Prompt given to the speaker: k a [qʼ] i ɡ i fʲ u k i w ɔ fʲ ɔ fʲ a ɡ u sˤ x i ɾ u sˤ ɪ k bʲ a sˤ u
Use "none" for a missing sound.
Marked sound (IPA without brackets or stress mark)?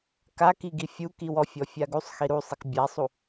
k